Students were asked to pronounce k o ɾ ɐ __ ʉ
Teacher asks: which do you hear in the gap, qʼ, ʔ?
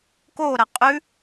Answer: qʼ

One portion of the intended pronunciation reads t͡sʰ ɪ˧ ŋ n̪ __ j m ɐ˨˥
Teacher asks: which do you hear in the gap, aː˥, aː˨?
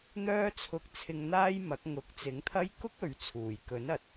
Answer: aː˥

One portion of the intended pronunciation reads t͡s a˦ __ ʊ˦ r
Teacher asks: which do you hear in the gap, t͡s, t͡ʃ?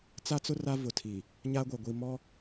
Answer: t͡s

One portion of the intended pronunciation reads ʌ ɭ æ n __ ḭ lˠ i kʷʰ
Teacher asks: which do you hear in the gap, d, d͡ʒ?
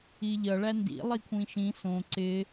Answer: d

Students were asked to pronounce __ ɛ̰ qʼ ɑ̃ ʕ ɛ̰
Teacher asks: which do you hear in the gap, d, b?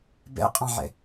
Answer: b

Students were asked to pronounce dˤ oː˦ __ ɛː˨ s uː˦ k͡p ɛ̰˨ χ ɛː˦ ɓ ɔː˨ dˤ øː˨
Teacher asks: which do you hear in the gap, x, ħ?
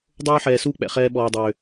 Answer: ħ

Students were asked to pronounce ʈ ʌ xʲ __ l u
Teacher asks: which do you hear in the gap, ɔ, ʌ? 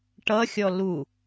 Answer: ɔ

